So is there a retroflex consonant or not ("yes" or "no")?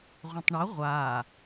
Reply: yes